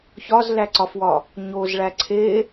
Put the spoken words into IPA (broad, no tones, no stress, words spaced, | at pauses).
çɒzlæǀɒfwɒ | ɲozɭæ ǀʰe